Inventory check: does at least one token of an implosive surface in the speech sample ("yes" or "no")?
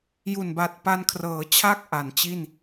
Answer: no